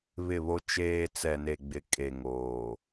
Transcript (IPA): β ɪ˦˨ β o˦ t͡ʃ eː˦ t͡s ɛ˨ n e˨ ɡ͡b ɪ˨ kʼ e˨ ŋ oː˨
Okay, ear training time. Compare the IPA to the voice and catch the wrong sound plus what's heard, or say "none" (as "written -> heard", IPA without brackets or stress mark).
none